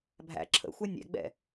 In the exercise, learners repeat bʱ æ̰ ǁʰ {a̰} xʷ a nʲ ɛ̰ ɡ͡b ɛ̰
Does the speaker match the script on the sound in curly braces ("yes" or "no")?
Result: no